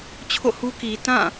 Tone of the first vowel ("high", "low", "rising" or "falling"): falling